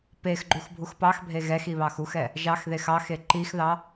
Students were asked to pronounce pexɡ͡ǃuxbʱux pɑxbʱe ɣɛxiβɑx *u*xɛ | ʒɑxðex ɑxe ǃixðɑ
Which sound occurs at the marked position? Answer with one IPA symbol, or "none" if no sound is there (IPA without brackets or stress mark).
u